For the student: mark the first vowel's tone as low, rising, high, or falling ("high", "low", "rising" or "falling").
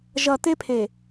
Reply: low